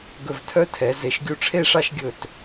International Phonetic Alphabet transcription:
ɡ ɵ˧˩ v tʰ œ˥˧ tʰ ɛ˩˧ z e˩˧ ʃ ɡʲ u˧˩ ʈ͡ʂʰ e˥˧ ʂ ɑ˥˧ ʃ ɡʲ ɵ˧˩ t

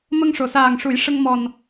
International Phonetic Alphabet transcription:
m ə˧ ŋ ʂ o˨˩˨ s aː˨˩ ŋ ʂ u˨˩˦ j ʂ ə˧ ŋ m ɔ˨˩ n

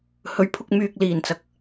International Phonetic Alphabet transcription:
h ɵ˨˧ ɥ pʰ ʊ˧ k̚ m yː˨ k̚ l iː˨˩ n t͡s ɐ˨ k̚

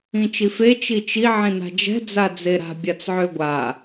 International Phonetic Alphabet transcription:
ĩ t͡ʃ i f e t͡ʃ i t͡ʃ i ʕ ĩ n a̤ d͡ʒ ɛ̤ d͡z a d͡z e ɾ a̤ bʲ a t͡s ʕ ø ɡʷ a

